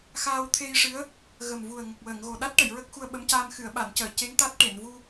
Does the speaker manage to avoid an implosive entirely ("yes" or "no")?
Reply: no